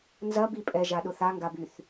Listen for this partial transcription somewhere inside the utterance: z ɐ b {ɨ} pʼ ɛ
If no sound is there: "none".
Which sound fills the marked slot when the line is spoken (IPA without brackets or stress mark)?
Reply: i